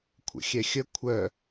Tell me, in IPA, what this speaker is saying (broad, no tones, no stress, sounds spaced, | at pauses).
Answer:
kʷʰ ə̰ xʲ ɛ xʲ ə kʷʰ œ